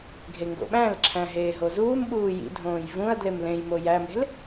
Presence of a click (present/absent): present